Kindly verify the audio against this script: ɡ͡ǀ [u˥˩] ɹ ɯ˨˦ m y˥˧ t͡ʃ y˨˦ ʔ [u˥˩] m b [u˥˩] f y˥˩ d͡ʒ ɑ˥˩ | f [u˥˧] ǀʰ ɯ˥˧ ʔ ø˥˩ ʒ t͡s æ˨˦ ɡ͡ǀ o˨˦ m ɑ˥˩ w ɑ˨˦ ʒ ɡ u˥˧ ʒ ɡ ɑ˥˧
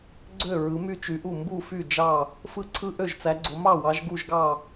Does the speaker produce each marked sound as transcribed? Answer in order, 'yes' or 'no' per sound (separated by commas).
no, yes, yes, no